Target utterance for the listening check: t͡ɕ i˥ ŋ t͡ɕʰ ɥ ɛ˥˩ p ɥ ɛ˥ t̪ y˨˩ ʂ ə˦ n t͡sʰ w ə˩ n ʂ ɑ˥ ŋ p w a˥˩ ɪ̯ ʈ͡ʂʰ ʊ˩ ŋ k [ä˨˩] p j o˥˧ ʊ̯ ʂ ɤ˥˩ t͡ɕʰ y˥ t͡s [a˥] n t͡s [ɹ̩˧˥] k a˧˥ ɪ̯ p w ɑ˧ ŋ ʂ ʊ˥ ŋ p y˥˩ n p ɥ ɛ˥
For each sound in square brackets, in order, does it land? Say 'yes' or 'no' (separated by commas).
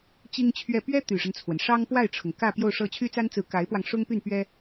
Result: no, yes, yes